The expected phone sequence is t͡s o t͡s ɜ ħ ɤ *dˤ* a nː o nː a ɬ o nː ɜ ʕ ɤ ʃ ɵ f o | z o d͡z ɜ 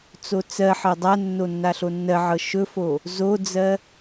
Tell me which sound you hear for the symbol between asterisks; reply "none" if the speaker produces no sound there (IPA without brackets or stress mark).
dˤ